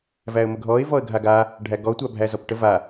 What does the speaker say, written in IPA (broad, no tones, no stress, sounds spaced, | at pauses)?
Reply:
v æ ə̯ m ə ɡʱ ɔ ɪ̯ v ɔ ə̯ ɡʱ a ɡ a | ɖʱ æ ɡ ɔ tʷ a bʱ æ z ɔ p ʈ ə v a